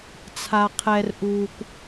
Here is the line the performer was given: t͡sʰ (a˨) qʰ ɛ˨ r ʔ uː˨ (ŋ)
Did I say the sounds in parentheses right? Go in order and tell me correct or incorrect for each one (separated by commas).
correct, incorrect